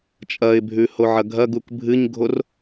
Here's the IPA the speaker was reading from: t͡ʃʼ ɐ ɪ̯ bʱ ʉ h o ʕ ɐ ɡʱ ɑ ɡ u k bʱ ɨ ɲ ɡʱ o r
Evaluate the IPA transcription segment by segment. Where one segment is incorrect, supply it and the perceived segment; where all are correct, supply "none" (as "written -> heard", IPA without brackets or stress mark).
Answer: ɑ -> ɐ